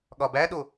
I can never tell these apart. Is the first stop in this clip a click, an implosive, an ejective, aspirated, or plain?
implosive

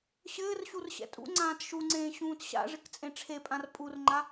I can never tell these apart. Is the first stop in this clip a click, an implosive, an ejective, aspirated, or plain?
ejective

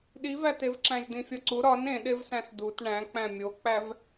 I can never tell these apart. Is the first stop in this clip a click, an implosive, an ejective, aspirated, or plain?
implosive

